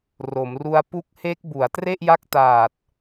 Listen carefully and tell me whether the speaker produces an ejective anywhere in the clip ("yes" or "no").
no